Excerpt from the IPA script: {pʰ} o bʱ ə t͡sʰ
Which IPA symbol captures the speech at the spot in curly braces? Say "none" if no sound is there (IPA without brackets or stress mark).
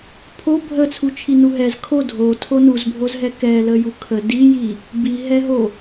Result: pʰ